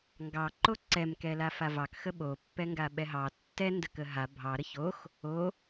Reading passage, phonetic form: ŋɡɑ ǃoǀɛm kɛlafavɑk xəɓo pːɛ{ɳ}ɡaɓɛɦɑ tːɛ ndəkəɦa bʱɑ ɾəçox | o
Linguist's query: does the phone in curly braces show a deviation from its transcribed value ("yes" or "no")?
yes